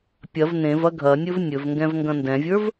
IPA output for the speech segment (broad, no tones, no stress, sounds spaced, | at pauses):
pʲ ɐ v n ẽ v ɐ ɡʱ ɐ nʲ ɵ v nʲ ɵ v ŋ ɡ ɛ̃ v ŋ ɡ ɐ̃ n d ɛ̃ vʲ ə˞ v